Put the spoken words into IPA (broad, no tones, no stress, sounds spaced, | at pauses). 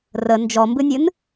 r ə n d͡ʒ ɔ m b ɨ nʲ ɨ n